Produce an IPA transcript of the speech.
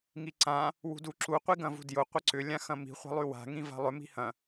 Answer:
ŋ i ǀ ã | w ṳ d u ǁ u qʷ i ɡ ɐ̃ v ṳ d j ʊ qʷ ɪ ǀ ʏ lʲ ã x ɐ̃ m i̤ χʷ a̤ lˠ y w a̤ ŋ ĩ v a̤ lˠ ʏ m i̤ h ɐ̃

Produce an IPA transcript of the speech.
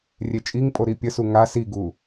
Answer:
rʲ e t͡ʃʼ i ŋ pʼ o ɾ i pʲ ə s u ŋ a s i ɡ u

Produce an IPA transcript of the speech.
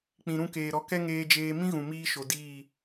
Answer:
k͡p ĩ˨ ɾ ũ˦˨ k eː˨ ɾ ɔ˧ k ɛ˦ ŋ eː˧ d͡ʒ eː˧ m ĩ˦ ɣ ũ˨ m iː˧ ʃ o˨ d iː˦˨

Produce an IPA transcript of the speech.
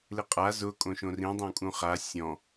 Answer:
l ɪ qʼ a z ʊ kʼ õ ʃ õ r ĩ dˤ õ kʼ ũ χ a sʲ ɔ̃

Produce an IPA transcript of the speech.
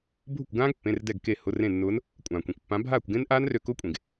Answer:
bʱ ʊ˥˩ kʷ ɡ ãː˦˥ ɡ pː ẽ˩˧˩ r d ɛ˧˩ ɡ k e˧˩ h ʊ˩˧˩ r ẽ˧˩ nː ʊː˨˦ n | kʷʼ ãː˩ kʷ ẽ˩ kʷ pː ã˨˦ bʱ aː˥˩ kʷ ɡ ẽ˦˥ n ʔ aː˦˥ n r ø˧˩ k ʊː˦˥ kʷʼ ẽ˩ ɡ

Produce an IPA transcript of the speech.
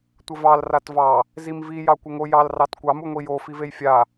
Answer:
tʷ ə v ɑ l r a t v ɑ | z i m v i j ɑ kʷ ə ŋ o j ɑ l r ɑ t kʷ ɑ m u ŋʷ i j o f i v e j fʲ a

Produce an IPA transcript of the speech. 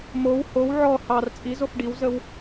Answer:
m o w h o w ʕ ɔ h ɑ r t͡sʼ i z o f ɖ i w z ə w

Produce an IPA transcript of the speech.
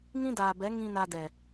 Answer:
ŋ ĩ˦ d aː˨ b ɛ˨˦ ŋ ĩ˧ n a˧ d ɛ˨

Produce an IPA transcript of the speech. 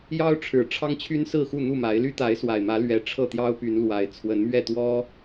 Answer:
j ɑ˦ ʊ̯ ʈ͡ʂʰ ɻ̩˨˩ ʈ͡ʂʰ ɑ˦ ŋ t͡ɕʰ y˦ n s ɹ̩˥˨ x u˥˨ n̪ u˥˨ m a˨˦ ɪ̯ l y˦ t̪ a˨˦ ɪ̯ s w a˨˩ ɪ̯ m ä˨˦ l ɥ ɛ˨˩ ʈ͡ʂʰ ɤ˥˨ t̪ j ɑ˦ ʊ̯ p y˨˦ n l w a˨˩ ɪ̯ t͡sʰ w ə˨˦ n m ɥ ɛ˥˨ t̪ w ɔ˦

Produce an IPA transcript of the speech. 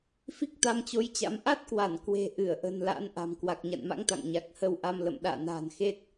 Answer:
f i˦˥ k̚ t̪ a˧ m t͡ɕ o˨˦ j t͡ɕ a̰˧˥ m ʔ a˦˥ t̚ k w a˧˩ n k w e̤˨˩ ʔ ɨ˧˩ ə̯ ʔ ə̤˨˩ n l a̰˧˥ n ʔ a̤˨˩ m k w a˨˩ k̚ ɲ a̰˧˨ n m a̰˧˥ ŋ t̪ a̰˧˨ ŋ ɲ a˨˩ k̚ h ə˧ w ʔ a˧ m l ə̰˧˨ m ɗ a̰ː˧˨ n a̤ː˨˩ n x e˦˥ t̚

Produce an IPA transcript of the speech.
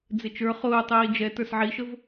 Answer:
d͡z ɪ t͡ʃ ə˞ χ ʊː tˤ iː d͡ʒ ɛ t ə˞ s ʕ i ʃ ə v

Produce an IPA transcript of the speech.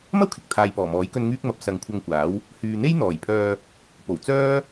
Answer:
m ɐ˥ w kʰ ɪ˨ k̚ t̪ʰ aː˨ j p ɔː˨˩ m ɔː˨˥ j k ɵ˧ n ŋ yː˥ k̚ m ɐ˨˥ p̚ s ɐ˨ ŋ kʷʰ ɐ˧ ŋ kʷ aː˨˥ w | h yː˨ n̪ e˥ j n̪ ɔː˨˩ j pʰ œː˧ | p o˨˩ w t͡s œː˥

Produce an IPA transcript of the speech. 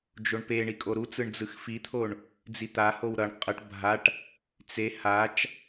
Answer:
d͡ʒ o ɳ p e ɳ i kʼ o ɾ u t͡s ɯ ɳ d͡z ɯ x f i t̪ʰ o ɳ | d͡z i t̪ a h o w ɾ ʌ ɳ qʼ ʌ ʈ bʱ a ʈ | t͡s e h a t͡ʃ

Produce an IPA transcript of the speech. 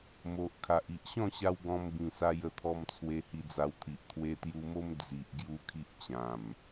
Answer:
m o˨ ʔ kʰ a˨ ʔ i˨ ʔ ɕ ɔ̃˥˧ ɕ a˧ w ɡ ɔ̃˧ m b ĩ˨˩ s a˧ j ə˧ t̪ʰ ɔ˧ m t͡sʰ w e˧ h i˧ d͡z a˧ w t̪ʰ i˨ ʔ t̪ʰ w e˧ t̪ j u˧ m o˦ m d͡z i˨ ʔ ɡ j u˦ kʰ i˦ ʔ t͡ɕ ã˨˩ m

